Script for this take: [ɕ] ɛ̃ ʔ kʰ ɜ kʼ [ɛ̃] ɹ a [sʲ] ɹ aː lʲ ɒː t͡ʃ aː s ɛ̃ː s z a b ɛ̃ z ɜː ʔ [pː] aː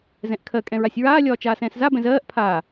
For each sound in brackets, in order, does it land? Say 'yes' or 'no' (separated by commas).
no, yes, yes, no